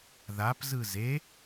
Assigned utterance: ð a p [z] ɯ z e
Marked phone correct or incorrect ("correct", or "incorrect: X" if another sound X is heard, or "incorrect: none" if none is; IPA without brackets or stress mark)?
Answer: correct